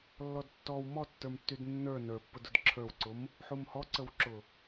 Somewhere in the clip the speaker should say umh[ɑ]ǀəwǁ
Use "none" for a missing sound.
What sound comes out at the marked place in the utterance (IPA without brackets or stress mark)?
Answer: ɔ